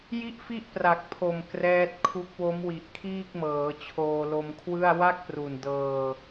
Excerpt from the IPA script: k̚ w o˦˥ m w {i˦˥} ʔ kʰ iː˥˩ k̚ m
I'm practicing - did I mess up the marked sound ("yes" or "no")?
yes